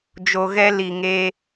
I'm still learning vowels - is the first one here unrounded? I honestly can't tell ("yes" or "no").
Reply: no